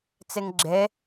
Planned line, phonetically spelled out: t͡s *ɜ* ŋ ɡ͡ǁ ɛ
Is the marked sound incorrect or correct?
incorrect